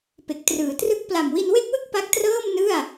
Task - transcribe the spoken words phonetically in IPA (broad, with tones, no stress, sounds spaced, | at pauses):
p e˨˩ k̚ t r ɯː˩˦ t r ɯ˦˥ k̚ p l a˨˩ m w i˧ n w e˥˩ k̚ w ɯ˥˩ k̚ p a˦˥ k̚ t r ɤː˥˩ m n ɯ˥˩ a̯